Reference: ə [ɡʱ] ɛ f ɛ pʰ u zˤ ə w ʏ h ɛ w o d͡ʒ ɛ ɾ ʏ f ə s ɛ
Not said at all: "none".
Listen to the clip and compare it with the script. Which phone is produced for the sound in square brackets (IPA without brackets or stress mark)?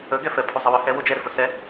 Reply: ɡ